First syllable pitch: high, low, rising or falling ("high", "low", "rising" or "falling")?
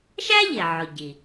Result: high